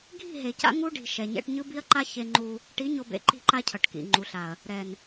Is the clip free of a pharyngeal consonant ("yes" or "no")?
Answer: yes